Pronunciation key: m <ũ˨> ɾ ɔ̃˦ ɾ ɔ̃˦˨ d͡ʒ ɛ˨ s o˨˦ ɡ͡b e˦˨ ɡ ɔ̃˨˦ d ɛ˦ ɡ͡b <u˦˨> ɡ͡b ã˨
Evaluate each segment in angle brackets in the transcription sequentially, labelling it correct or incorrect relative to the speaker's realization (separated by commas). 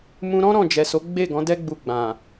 incorrect, incorrect